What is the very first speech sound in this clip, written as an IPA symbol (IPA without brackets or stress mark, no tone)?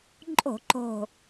ǃʼ